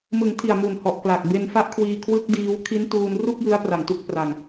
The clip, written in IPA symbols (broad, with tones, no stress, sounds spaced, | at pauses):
m ɯ˩˦ ŋ tʰ i˨˩ a̯ m u˨˩ n h ɔ˨˩ ʔ k l a˨˩ k̚ b e˧ n f a˦˥ ʔ kʰ w iː˧ kʰ w ɯ˦˥ k̚ d iː˦˥ w kʰ i˦˥ n t uː˧ n r u˥˩ k̚ j ɯ˦˥ a̯ p r a˨˩ ŋ t u˦˥ k̚ p r a˧ ŋ